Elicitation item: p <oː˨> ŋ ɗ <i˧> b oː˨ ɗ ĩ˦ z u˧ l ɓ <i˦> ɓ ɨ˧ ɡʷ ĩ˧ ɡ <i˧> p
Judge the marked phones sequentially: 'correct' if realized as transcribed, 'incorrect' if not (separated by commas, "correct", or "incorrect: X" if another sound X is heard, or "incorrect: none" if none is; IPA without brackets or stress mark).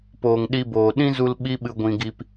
correct, correct, correct, correct